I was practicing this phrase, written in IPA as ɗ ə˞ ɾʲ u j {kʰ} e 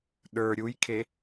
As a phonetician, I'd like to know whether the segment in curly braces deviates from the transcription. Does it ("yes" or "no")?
no